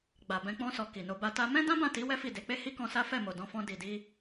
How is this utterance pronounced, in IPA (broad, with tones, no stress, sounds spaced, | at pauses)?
ɡ͡b a˨ b ɛ̃˧ k͡p ɔ̃˧ s ɔ˨ k i˨ n o˧ b a˧ t a˦ m ɛ̃˦ d ã˦ b ã˦˨ t i˨˦ w ɛ˦ f i˦˨ d e˨˦ k͡p e˦ h i˦ k ɔ̃˧ s a˦ f ɛ˦˨ m o˨ d ɔ̃˧ f ɔ̃˧ d i˨ d i˧